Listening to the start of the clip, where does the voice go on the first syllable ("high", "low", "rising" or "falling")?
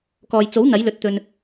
low